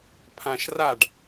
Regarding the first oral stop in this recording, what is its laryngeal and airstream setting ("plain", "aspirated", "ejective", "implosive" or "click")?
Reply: aspirated